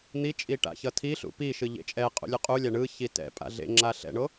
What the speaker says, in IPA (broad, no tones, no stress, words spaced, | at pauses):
n̪it͡ʃʼi ʈa̰çʌtʰiɬṵ piʃɯ ʎḛt͡ʃʼɛqʼṵ lʲuqʼulʲa ɳɯçi tɛ̰ pʼa̰ɮḛŋ͡ǁa ɬɛ̰ɳo